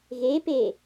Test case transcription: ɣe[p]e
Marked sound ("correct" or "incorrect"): correct